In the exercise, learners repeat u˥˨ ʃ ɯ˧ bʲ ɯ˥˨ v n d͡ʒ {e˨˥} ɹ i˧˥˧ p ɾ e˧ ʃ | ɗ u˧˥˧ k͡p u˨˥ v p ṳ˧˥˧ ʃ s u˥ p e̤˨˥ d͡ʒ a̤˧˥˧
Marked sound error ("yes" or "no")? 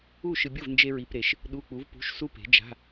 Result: yes